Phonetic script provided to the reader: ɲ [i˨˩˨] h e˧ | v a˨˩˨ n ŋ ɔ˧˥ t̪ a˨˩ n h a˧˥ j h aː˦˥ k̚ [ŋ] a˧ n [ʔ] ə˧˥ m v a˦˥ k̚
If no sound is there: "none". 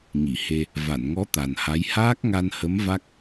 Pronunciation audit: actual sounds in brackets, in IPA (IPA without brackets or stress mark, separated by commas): i˨˩˨, ŋ, h